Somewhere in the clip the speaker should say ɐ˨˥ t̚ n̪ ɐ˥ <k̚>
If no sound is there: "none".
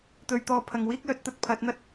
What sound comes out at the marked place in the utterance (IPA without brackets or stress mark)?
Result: t̚